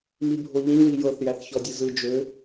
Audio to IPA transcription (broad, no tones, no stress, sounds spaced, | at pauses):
m i bʱ o ʎ ĩ w i j ɤ θ j æ θ ç ɔ dʲ ɯ z ɯ d͡ʒ ø